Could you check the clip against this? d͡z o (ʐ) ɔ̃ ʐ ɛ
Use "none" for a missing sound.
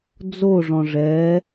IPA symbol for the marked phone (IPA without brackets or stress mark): ʐ